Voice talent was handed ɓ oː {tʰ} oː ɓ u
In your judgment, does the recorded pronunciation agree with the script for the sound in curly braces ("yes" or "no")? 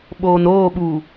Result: no